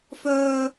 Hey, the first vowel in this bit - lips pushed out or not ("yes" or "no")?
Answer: yes